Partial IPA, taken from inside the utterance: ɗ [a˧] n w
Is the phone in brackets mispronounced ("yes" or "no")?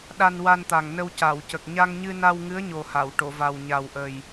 no